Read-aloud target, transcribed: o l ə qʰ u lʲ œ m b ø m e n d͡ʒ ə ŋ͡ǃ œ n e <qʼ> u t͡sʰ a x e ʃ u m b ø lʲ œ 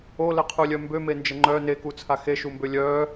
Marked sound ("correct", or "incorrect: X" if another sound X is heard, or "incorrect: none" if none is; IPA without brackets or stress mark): incorrect: k